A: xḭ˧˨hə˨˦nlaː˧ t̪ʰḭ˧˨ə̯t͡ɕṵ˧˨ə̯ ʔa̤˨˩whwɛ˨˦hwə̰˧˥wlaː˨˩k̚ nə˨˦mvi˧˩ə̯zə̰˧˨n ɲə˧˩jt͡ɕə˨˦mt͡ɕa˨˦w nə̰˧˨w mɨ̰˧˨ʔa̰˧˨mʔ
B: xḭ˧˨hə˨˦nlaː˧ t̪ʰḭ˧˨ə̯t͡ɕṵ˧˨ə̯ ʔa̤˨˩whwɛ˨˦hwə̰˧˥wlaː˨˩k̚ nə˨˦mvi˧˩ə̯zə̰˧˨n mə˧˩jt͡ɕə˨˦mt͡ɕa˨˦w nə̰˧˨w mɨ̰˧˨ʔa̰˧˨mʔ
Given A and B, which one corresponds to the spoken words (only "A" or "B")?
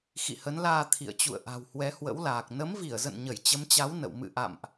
A